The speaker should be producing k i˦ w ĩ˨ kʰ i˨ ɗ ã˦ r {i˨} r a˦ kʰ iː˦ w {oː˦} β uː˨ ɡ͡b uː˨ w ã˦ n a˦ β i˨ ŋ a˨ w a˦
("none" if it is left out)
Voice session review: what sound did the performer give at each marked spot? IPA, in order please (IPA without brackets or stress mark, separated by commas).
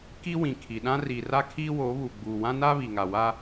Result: i˨, oː˨˦